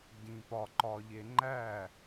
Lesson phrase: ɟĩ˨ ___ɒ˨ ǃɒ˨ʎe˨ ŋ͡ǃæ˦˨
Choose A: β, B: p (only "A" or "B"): B